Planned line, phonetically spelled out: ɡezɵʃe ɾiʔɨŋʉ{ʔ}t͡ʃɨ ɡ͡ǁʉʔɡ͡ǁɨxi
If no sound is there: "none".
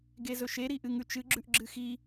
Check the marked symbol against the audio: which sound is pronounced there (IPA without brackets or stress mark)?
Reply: none